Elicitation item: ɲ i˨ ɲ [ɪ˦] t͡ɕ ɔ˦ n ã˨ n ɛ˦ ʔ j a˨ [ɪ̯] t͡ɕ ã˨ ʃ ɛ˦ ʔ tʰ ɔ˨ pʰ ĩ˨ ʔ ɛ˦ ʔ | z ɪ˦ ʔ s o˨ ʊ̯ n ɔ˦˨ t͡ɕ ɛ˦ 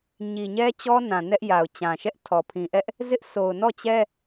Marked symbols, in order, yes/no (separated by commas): no, no